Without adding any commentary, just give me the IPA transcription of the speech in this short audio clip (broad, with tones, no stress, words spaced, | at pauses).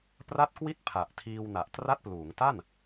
pra˦˥t̚kwi˦˥t̚ pʰa˨˩ʔtʰiː˧w na˨˩ʔtra˦˥t̚pluː˩˦ŋ ta˥˩n